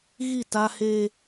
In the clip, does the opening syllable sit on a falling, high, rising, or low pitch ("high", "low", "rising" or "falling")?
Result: falling